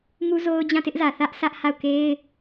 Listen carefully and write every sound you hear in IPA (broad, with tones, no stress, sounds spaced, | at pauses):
ŋ u˦ z o˦ ʊ̯ d͡ʑ ã˦˨ t ɪ˦ ʔ z ä˨ θ ä˦ ʔ sʰ ä˦ ʔ h a˦˨ ʊ̯ k e˦ ɪ̯